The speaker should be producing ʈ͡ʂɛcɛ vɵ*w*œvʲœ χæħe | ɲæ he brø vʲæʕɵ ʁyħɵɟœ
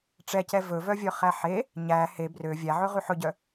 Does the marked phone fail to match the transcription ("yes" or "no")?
yes